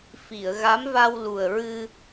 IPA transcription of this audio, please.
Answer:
f i˨˩˨ ə̯ ɣ a˧˥ m v a˧ w l u˨˩ ə̯ ɹ ɨ˧

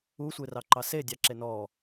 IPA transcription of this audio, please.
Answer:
u sʷ e r ɑ ǃ ɑ s e dʲ ɑ ǁ e n ɔ

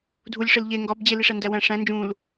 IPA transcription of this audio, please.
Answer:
dʱ u lʲ ʂ e l ʎ e ŋ ɡ ɒ b d͡ʑ e l i ʂ æ n d æ w æ̃ ʂ æ̃ n d͡ʒ ũ l

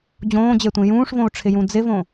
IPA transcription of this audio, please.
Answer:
d͡ʑ õː d͡ʑ e tʷ ĩ j ũː ʂ v õ u̯ ʈ͡ʂʰ ɪ j ũ d͡z ɪ v õ

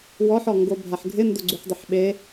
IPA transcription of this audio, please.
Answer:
w ɔ ħ ɔ ŋ ɡ o bʱ a ħ ɡʱ ɪ n d ʊ ɡ͡ǀ u ħ dˤ ɪ ħ ɓ e

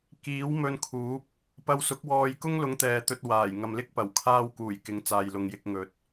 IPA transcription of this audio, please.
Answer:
k iː˨˥ w m ɵ˧ n kʰ uː˨˥ p̚ | p ɐ˧ w s ʊ˨˥ k̚ w ɔː˧ j k ʊ˥ ŋ l ʊ˨˧ ŋ t̪ ɛː˨ t̪ ɵ˧ t̚ w aː˨˩ j ŋ ɐ˨ m l ɪ˥ k̚ p ɐ˨˩ w kʰ aː˧ w k uː˨˩ j k ɪ˨˥ ŋ t͡s aː˨ j l ʊ˨ ŋ j ɪ˧ k̚ ŋ ɵ˨ t̚

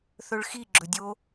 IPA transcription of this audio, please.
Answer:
θ ɵ ɭ x i ɡ͡ǁ ɵ dʲ o

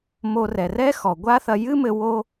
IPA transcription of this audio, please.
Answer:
m o˧ r ɛ˩ r ɛ˥ x ɔ˩ ɡʷ a˥ θ ɐ˧ j ɨ˥ m ɘ˧ w o˥

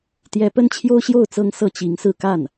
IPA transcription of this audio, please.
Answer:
t̪ j ɛ˧˥ p ə˥ n t͡ɕʰ j o˥ ʊ̯ ɕ j o˥˩ ʊ̯ t͡s ɤ˥ ŋ s ɤ˥˩ t͡ɕ i˧˥ ŋ s ɹ̩˥˧ k a˥˩ n

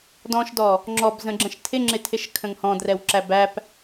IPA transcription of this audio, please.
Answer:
d ɔ̃ ʃ d ɔ | ŋ͡ǁ ɔ b z ə̃ ɡ͡ǁ ə̃ ʃ tʰ ɪ ŋ͡ǁ ɪ tʰ ɪ ʃ kʰ ə̃ ŋ h ɔ̃ d r ɛ w ǁ æ b æ p

